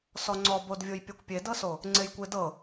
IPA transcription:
sɔŋ͡ǀɔbodvʲoj pʲɔkʷpʲedɤso | ŋ͡ǀejkʷedɤ

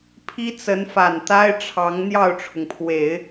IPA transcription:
pʰi˥t͡sə˧˥n fa˨˩nt̪a˥ɪ̯ʈ͡ʂʰɑ˧˥ŋ n̪jɑ˥˩ʊ̯ʈ͡ʂʰʊ˩ŋpʰwe˨˩˦ɪ̯

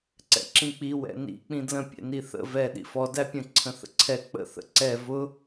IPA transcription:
ǀɛ̰ǁĩk͡pi wɛ̰nḭ k͡pĩdlə̃ pʲɛ̰niθə̰ vɛ ɗḭfɔ dæpʲə̃ ǀʰə̃θə̰ǀʰɛ k͡pə̰ θə̰ǀɛ vʊ

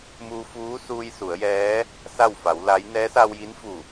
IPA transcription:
muː˧fuː˧˥ suː˧jsu˩˧ə̯jɛː˧˥ | sa˥˨wfa˩˧wla˧˥j nɛː˧˥sa˧wji˧˥nfu˧˩

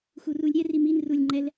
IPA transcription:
xurulʲɾʲɛ rimin rulʲŋ͡ǃɛl

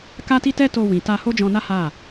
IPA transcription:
ka˦ti˦tɛ˦ to˧wĩ˨ta˧ ho˦d͡ʒɔ̃˧na˦ ha˦˨

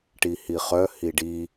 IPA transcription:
ʈihiχœ hiɖi

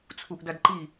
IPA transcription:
t͡sʰuʔdɐdǃi

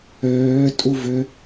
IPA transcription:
øː tʼuvʏ

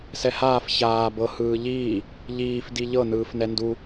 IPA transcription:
sɛhaːf çaː bɤ hɯːʎiː | ʎiːf diʎɤ nɯːfnɛndu

